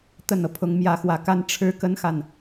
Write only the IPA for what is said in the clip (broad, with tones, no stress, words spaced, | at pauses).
t̪ə˥˩nɤ˩ pʰʊ˧˥ŋmjä˧˥xwä˧˥ka˥n ʈ͡ʂʰɻ̩˥kə˥nxa˨n